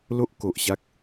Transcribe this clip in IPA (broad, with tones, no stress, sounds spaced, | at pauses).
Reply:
l o˦ ʔ k o˨ ʔ ɕ a˦ k̚